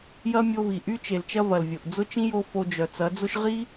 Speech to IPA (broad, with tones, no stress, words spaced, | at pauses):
jɐ˦mʲo˧vi˨ ʔy˦t͡ʃe˨lt͡ʃɐ˦vɐ˨l vʲo˨ʔd͡zʊ˦ t͡ʃĩ˦jo˧ fo˧d͡ʒœ˨ t͡sɐ˨˦d͡zʊ˦ʃ ʁi˦